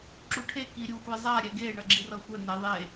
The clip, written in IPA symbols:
ǁ u ʈʰ e k i ɾʲ u xʷ ɛ zˤ a ɾʲ ɛ ɡ e ɳ ʌ ɡ͡ǁ i r ʌ xʷ ɛ n ɛ ðˤ e

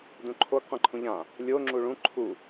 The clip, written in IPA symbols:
d ũ ǃʰ o ɡ qʷ ɛ̃ ǃʰ ũ ʎ ã | lʲ o ŋ͡ǁ u ɭ ũ ǃʰ u

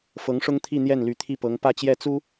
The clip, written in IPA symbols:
f ɤ˧˥ ŋ ʂ ʊ˥ ŋ t̪ʰ i˥˧ n̪ j ɛ˥˩ n l y˧˥ t̪ʰ i˥˩ p ɤ˧˥ ŋ p ä˥˧ t͡ɕ j ɛ˥˩ t͡s u˥

